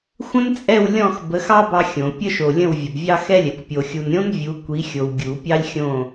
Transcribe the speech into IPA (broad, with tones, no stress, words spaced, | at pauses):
xʷə̃˥nt͡sʼɛ˥˨w lʲɔ̃˥˨x bə˨˥xɑ˥ bɑ˥xʲõ˨˩˦ pʲə˥ʃo˨lʲə̃˥˨w vʲə˨bvʲɑ˥xɛ˥lʲɛ˨kʷ pʲo˨xʲu˨nɾʲõ˥n vʲu˨˥ kʷi˨˥xʲo˨w ɡʲu˨˩˦pʲɑ˥lʲ xʲõ˥˨